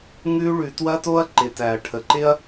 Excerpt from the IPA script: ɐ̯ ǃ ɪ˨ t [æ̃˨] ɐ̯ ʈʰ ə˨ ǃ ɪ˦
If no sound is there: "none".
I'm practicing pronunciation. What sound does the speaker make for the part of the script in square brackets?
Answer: æ˨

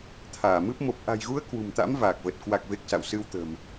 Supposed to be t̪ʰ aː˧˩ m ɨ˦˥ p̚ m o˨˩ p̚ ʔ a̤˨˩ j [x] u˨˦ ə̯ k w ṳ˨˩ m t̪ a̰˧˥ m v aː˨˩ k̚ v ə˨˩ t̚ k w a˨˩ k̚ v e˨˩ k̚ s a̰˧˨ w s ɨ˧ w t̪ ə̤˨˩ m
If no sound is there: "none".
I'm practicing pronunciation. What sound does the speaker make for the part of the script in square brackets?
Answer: ɣ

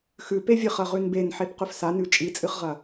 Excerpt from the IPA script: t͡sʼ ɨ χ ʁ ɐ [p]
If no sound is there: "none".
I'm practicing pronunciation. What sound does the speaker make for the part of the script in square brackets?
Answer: none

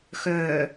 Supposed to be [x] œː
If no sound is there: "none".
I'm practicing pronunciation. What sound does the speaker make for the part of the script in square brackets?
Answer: x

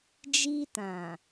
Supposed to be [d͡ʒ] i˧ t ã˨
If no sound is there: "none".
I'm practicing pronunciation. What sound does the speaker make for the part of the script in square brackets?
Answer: d͡ʒ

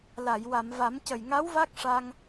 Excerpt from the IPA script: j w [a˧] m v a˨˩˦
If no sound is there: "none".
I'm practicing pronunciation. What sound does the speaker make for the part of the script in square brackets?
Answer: a˨˩˨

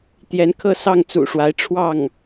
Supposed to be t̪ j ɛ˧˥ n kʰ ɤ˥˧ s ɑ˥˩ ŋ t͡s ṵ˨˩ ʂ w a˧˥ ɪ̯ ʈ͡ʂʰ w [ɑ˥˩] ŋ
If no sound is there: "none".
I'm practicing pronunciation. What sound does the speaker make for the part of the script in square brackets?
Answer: ɑ˥˩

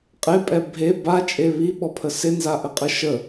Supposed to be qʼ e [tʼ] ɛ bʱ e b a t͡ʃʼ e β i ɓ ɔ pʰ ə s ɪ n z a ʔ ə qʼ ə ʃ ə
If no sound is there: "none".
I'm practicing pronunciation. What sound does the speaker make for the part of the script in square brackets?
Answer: pʼ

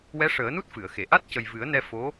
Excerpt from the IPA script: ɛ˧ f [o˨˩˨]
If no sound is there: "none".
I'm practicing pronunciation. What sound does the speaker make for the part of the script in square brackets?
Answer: o˧˥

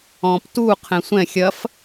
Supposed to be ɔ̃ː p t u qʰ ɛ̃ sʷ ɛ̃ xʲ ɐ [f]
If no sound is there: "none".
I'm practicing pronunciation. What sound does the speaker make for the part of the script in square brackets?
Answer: f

